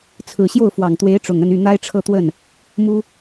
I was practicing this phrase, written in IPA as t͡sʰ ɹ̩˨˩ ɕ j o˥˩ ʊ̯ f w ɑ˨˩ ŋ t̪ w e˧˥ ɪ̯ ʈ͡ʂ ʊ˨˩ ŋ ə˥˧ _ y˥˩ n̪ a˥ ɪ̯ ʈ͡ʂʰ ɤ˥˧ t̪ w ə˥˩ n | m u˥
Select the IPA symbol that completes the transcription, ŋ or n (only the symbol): n